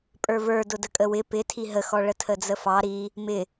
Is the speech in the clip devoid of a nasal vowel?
yes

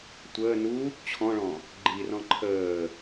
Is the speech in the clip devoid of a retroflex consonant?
no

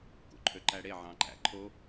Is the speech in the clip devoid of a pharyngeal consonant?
no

